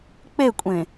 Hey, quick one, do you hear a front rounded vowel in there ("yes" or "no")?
no